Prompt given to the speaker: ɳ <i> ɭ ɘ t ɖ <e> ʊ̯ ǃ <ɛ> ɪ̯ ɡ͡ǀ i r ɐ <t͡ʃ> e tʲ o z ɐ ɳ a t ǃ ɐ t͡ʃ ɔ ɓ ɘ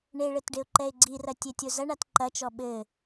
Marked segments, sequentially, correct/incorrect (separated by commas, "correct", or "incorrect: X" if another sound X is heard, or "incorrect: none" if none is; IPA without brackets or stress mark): incorrect: e, correct, correct, incorrect: tʲ